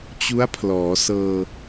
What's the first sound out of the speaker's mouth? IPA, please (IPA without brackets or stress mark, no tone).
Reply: t͡ɕ